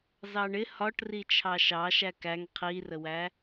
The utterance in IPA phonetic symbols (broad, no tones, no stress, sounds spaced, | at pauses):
z ɑ ɳ ɪ h ɒ ʈ r i t͡ʃʰ ɑ ʃ ɑ ʃ æ k æ ŋ qʰ i r ə w æ